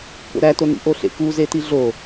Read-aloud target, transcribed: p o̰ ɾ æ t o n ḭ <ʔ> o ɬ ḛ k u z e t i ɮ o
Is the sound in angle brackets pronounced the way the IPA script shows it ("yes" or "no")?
yes